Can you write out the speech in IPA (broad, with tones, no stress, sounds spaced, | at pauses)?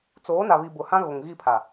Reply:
t͡s oː˨˦ n a˨ β i˨ b ʊ˨ h ã˦ ɣ o˨ ŋ ɣ i˦˨ pʰ a˨